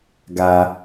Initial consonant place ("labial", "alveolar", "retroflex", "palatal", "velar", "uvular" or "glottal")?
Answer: velar